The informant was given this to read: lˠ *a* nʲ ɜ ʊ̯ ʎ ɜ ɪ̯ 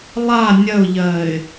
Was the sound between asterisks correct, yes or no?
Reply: yes